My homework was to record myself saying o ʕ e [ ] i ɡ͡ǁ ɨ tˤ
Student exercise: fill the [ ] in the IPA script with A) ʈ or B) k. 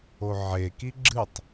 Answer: B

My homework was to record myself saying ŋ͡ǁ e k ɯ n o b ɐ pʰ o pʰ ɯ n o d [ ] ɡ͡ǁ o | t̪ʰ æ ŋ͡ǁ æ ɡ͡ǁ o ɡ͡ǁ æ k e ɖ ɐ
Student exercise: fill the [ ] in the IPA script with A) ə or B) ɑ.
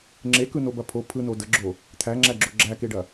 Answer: A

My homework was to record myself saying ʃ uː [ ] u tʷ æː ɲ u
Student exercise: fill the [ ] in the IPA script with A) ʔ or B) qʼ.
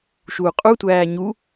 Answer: B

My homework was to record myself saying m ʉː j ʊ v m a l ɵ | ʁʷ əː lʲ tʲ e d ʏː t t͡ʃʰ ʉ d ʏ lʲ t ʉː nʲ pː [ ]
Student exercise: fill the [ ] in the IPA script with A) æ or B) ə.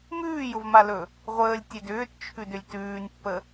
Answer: B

